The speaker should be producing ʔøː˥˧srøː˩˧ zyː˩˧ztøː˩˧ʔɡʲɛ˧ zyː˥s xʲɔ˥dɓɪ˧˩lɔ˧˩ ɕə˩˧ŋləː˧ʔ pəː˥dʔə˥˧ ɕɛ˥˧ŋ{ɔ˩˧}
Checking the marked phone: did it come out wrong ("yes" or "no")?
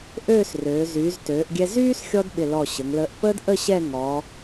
no